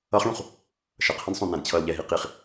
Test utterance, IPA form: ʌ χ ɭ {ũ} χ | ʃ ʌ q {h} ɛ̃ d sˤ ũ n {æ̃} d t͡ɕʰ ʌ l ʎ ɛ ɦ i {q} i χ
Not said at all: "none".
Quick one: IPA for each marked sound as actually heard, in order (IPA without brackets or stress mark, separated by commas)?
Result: ũ, h, æ̃, q